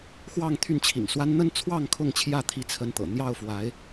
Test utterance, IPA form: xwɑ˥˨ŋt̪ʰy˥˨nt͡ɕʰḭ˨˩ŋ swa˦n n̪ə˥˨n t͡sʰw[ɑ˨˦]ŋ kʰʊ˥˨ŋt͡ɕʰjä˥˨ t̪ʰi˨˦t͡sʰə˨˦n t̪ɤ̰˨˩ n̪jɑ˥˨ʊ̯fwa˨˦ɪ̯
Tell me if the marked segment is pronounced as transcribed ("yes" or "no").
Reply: no